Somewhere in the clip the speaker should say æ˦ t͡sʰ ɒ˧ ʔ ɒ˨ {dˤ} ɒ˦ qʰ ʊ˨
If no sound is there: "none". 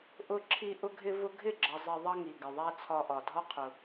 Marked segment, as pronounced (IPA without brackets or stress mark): dʱ